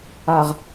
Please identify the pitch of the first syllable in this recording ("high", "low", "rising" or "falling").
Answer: low